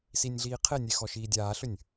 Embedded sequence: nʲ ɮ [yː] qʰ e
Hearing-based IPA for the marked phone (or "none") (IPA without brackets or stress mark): iː